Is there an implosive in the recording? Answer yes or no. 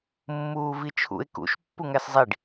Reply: no